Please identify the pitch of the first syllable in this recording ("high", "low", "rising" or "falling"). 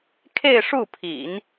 falling